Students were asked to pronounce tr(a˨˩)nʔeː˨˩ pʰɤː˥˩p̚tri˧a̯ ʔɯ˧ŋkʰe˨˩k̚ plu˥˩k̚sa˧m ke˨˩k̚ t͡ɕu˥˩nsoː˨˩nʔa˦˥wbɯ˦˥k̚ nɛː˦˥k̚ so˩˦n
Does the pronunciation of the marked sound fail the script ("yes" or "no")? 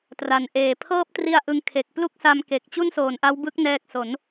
yes